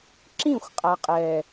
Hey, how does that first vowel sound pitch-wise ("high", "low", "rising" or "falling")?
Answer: falling